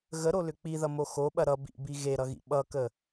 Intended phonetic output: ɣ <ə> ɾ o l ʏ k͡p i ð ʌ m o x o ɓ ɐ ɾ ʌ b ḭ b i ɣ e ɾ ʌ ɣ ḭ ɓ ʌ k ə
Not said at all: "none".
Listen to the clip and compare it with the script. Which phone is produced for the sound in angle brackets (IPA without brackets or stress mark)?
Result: ə